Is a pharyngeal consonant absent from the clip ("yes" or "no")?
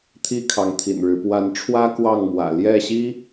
yes